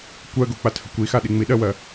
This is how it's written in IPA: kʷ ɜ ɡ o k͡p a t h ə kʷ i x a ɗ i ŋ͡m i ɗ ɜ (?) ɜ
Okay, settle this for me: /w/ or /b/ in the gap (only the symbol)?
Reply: w